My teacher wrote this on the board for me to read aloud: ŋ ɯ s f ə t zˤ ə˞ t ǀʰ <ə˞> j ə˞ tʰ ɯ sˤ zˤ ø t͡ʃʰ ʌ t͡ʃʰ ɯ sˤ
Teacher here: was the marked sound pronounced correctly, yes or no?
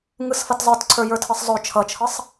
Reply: yes